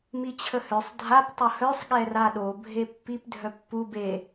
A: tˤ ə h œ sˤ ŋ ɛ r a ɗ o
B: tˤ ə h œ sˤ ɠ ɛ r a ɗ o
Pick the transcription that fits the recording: B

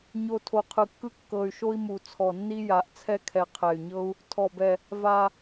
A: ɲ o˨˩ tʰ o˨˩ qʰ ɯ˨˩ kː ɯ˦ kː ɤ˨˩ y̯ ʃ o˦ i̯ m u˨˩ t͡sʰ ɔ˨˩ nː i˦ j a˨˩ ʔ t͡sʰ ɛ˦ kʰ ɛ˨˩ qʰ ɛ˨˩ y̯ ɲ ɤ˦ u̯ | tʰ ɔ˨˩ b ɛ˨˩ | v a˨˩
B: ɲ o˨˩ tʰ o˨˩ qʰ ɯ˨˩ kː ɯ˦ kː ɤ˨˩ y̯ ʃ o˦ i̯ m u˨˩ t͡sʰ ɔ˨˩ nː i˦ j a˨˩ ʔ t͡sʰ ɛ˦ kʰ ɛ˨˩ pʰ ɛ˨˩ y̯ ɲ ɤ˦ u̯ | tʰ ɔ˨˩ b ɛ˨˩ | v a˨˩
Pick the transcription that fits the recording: A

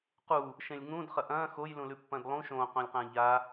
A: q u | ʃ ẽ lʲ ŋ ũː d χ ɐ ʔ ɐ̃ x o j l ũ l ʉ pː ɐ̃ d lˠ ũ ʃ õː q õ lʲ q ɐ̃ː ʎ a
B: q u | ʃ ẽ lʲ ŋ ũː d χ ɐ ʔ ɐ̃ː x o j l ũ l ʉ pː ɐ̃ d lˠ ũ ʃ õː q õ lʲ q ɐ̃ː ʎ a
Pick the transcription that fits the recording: B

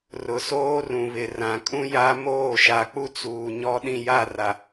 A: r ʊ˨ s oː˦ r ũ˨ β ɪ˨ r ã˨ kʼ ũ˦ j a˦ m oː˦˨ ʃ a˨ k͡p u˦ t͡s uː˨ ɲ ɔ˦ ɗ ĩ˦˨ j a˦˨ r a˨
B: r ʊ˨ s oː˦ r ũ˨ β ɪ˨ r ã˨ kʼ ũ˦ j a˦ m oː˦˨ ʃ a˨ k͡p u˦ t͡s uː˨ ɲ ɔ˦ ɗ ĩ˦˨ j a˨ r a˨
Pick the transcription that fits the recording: A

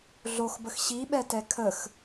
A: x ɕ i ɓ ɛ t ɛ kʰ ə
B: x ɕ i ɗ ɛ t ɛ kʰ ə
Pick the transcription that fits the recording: A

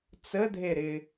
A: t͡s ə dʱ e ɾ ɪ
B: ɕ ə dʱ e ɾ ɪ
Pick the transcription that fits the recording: A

